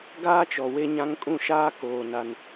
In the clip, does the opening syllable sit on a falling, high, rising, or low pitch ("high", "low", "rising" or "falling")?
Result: high